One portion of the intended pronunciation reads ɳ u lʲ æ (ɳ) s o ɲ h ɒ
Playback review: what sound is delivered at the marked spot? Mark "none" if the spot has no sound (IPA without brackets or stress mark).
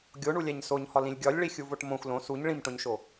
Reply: ɲ